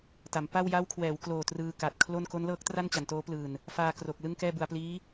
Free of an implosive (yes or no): yes